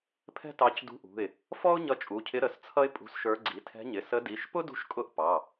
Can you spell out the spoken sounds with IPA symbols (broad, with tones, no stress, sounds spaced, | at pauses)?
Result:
pʰ ɛ̤˥ t ɑ˧˥ c d ṳ˧˥ ʔ ṳ˩˧˩ ɪ̯ | f ɔ˥ ʊ̯ ɲ ʌ˧˥ t͡ʃʼ u˩˧˩ cʰ ɪ˧˥ ɾ ə˩˧˩ s t͡sʰ ʌ˥ ɪ̯ pʼ ṳ˧˥ s ʃ ə˞˧˥ ɡ͡ǀ i˩˧˩ tʰ ɛ̤˧˥ ɲ ɪ˩˧˩ s ə˧˥ d i˩˧˩ ʃ p ʊ˥ d ṳ˧˥ ʃ kʼ ʊ˧˥ ʔ p ɑ˩˧˩